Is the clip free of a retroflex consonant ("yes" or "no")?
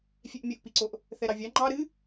yes